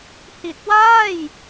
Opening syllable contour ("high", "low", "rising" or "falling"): low